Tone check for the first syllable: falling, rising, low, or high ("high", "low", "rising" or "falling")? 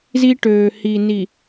high